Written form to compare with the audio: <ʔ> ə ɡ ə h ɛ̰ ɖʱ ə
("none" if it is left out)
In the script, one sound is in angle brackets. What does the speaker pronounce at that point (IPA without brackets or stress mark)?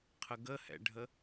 qʰ